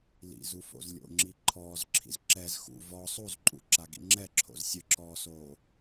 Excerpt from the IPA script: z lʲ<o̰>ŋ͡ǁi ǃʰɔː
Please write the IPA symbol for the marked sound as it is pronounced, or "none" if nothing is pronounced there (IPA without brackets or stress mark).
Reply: o̰